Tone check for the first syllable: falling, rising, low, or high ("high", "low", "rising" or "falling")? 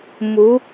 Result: rising